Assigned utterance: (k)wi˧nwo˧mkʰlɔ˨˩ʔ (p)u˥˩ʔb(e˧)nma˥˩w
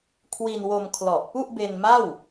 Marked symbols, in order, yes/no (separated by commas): no, yes, yes